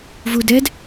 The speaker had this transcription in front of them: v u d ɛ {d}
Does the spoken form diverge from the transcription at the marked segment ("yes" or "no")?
no